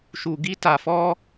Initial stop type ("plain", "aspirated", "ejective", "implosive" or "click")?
plain